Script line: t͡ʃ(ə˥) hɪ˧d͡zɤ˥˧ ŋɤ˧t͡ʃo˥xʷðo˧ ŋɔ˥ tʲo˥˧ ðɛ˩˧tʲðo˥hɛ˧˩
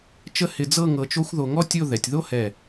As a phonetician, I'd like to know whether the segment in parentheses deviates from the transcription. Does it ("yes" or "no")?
no